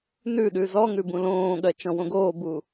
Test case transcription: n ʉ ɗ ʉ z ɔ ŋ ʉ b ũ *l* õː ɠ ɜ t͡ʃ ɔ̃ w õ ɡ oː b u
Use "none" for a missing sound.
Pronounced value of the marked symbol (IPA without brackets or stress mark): l